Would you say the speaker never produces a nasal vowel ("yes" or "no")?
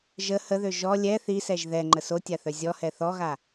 yes